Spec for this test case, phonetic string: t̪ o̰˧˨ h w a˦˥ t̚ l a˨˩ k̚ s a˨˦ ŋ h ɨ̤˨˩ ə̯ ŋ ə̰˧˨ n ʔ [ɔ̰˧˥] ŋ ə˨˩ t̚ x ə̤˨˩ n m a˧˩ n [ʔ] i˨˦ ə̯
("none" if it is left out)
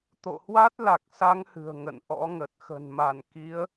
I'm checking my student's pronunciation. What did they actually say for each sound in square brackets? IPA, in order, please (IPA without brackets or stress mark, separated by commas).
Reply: ɔ̰˧˥, k